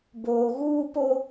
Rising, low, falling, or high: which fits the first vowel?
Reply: low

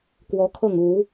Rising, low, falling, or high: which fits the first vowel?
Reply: rising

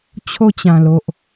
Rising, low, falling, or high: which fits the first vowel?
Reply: falling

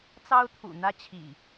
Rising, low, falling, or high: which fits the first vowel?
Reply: high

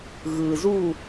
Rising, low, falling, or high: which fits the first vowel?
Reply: low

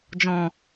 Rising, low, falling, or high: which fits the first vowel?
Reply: low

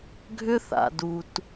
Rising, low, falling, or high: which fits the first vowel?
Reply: high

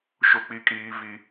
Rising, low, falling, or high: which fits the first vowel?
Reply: high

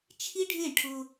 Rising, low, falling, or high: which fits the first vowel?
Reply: high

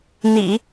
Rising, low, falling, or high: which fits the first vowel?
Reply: low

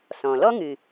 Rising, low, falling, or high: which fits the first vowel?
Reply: low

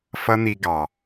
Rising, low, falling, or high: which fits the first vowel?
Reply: high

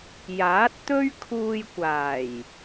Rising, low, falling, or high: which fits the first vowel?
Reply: rising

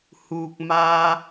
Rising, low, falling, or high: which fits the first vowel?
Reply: low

